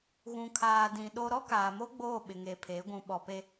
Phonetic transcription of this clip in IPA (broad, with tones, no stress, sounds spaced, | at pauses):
ɣ ũ˨ kʰ aː˨ d ĩ˨ ɗ o˦ ɾ ɔ˦ k aː˨ m o˦ ɡ͡b oː˦˨ ɓ ɪ˨ ŋ e˨ pʰ e˨˦ ɡʷ ũ˨ ɓ ɔ˨ p e˦